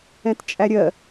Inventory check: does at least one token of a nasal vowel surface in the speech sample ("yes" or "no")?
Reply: yes